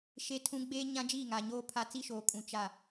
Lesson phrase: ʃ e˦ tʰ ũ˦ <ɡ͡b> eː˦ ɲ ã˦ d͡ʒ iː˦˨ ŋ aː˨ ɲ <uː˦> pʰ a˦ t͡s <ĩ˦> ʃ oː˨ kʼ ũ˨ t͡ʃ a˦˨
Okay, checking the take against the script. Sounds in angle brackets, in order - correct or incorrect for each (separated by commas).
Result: correct, incorrect, incorrect